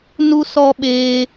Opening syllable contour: high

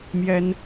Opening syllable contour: high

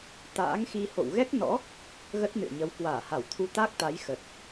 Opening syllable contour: rising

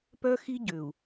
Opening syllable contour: high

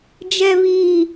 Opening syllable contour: high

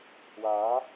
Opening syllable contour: rising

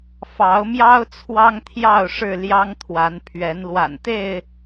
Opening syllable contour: rising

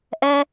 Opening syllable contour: high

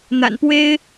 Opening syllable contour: low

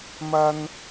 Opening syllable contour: high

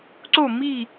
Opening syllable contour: falling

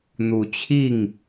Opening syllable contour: rising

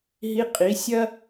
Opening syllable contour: rising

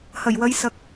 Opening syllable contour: low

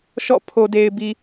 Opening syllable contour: falling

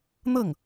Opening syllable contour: falling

